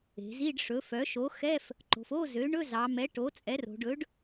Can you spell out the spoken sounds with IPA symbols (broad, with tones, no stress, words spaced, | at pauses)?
e̤˩˧zi˧˥˧ɖ ʂɵ˩˥fœ˩˥ ʃo˩˥xɛ˧˥˧f | ǃo̤˩˧fo˧˥˧zø˩˥ ɳɵ˧˥˧zɑ˩˧mɛ˩˥ ʈo˩˥t͡sʼɛ˩˥ro̤˩˧ɖɵ˩˥ɖ